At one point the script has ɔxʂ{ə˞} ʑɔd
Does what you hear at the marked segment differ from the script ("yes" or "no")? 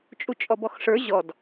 no